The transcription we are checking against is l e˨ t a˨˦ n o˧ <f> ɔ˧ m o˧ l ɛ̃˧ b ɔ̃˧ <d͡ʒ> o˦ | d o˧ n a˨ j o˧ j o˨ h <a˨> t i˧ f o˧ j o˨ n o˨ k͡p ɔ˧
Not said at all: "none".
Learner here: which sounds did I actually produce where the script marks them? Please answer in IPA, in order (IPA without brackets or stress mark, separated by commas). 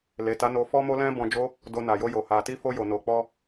f, d͡ʒ, a˨